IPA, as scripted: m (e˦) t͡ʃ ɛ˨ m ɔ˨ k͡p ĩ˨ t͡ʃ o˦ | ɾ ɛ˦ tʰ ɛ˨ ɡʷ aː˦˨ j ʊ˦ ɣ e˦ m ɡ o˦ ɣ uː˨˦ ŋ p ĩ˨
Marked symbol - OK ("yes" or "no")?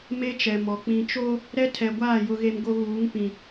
yes